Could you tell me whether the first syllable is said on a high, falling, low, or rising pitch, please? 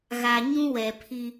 low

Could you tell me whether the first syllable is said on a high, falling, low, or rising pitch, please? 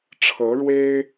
rising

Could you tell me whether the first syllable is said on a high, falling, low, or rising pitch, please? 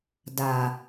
low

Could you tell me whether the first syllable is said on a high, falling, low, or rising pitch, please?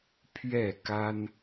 falling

